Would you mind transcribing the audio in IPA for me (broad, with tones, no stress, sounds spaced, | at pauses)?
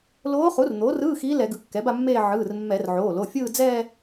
l oː˧˥ χ u˩˥ r n̪ oː˩˥ r ɯː˧˥˧ x iː˧˥ l ɛ˧˩˧ ɡ ɯ˩˧˩ kː ɛ˩˥ b a˥˧ mː eː˥˧ ʕ ɯː˩˧˩ r mː ɛ˧˩˧ r ʕ oː˩˧˩ l o˩˧˩ fʲ ɯː˥˧ d͡z ɛː˥˧